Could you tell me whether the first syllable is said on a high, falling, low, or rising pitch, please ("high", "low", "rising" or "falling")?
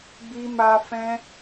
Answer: high